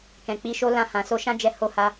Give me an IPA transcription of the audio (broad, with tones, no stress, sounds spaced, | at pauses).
k ɛ̃˨ k͡p i˧ ʃ o˦ l ã˧ h ã˨ s o˧ ʃ ã˦ d͡ʒ ɛ˧ h o˧ h a˧